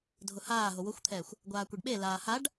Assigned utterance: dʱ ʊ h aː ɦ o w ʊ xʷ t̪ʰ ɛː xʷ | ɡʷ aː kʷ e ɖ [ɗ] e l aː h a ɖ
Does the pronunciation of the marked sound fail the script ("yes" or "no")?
yes